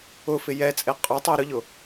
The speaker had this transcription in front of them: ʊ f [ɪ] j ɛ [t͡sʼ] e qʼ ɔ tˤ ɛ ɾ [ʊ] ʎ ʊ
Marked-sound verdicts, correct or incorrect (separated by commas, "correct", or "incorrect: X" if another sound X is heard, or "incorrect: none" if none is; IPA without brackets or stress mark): correct, correct, correct